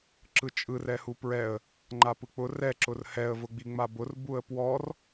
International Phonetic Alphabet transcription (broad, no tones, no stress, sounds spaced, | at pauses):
ǁ ɯ t͡ʃʼ ɯ r ɛ h u p ɹ ɛ ə̯ | ŋ͡ǃ a p ɯ k͡p ʊ r ɛ ǁ ʊ r h ɛ ə̯ v ʊ ɡ͡b i ŋ͡m a b ʊ r b u ə̯ p w ɔ r